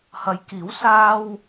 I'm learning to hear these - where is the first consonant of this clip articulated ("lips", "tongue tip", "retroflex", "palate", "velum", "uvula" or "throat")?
throat